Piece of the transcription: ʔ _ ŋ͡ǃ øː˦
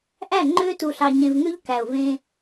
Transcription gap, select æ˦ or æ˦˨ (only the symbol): æ˦˨